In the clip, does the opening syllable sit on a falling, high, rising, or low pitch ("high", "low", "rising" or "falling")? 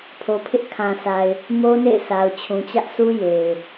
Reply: low